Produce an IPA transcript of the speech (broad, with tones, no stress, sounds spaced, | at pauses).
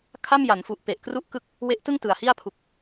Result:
kʰ a˥˩ m j a˩˦ n f u˨˩ ʔ p e˨˩ ʔ k r u˥˩ ʔ k ɯ˥˩ k̚ | w e˦˥ ʔ t ɯ˥˩ ŋ t ɯ˨˩ a̯ h i˥˩ a̯ pʰ u˨˩ k̚